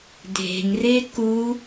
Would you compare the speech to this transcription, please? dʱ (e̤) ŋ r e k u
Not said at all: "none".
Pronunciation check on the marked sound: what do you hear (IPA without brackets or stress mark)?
e̤